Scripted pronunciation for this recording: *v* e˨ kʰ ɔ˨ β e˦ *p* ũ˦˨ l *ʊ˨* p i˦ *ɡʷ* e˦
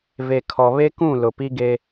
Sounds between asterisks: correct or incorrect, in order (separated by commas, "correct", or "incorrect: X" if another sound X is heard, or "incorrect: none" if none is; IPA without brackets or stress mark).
correct, incorrect: k, correct, incorrect: ɡ